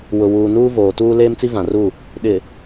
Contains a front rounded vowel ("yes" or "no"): no